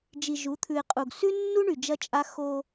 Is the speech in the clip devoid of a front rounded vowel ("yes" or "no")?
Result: no